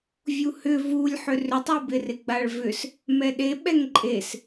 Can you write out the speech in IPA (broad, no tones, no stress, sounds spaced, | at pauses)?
vʲ u h ʏ v u lʲ ħ ʏ r ʏ tˤ u b ɪ r ɪ ɡ͡b a ɭ v ʏ s | m ɛ ɗ e ɓ ɛ ŋ ǃʼ e s